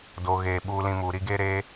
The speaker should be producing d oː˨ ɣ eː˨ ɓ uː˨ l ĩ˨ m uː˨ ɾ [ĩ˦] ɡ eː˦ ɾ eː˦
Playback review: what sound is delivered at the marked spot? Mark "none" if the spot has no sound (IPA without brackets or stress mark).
i˦